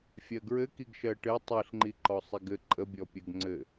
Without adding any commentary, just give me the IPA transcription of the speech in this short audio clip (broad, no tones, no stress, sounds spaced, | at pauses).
fʲ ɜ ɡ ɹ ɘ k i ɡ ʃ ɜ ʈ ɘ tˤ i ɬ ŋ͡ǃ i ǃ ɔ sˤ i ɡ ɘ ǃʼ ə bʲ ɔ pʲ ɘ ɡ ŋ͡ǀ ɘ